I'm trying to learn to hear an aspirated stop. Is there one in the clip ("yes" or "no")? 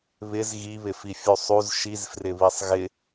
no